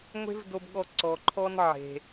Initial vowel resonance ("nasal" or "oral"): oral